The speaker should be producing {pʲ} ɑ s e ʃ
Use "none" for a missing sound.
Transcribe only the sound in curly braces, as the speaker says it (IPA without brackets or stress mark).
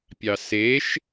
pʲ